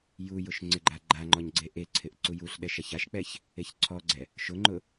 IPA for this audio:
j u j ʊ ʃ ŋ͡ǀ ɪ ɡ͡ǃ a ɡ͡ǃ a ŋ͡ǃ ɔ ɲ ɡ͡ǀ e ʔ e ǀʰ ɪ ʔ ǀ u j u ɬ ɗ ɛ ʃ a ç a ʃ k͡p ɛ ç | e ç ǀʰ ɔ ɡ͡ǀ ɛ | ʃ ʊ ŋ͡ǃ ʊ

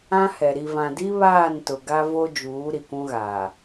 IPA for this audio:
ã˦ h ɛ˨ ɾ i˨ v ã˨ d i˦ β aː˦˨ n t ʊ˨ ɡ a˦ v o˦ d͡ʒ uː˨˦ ɾ i˨ kʷ ũ˦ ɣ aː˨

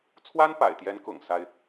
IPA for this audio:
t͡sʰ w a˥ n p a̰˨˩ ɪ̯ t̪ j ɛ˧˥ n k ʊ̰˨˩ ŋ s a˥ ɪ̯

